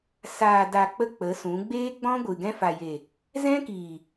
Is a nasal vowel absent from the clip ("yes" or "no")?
no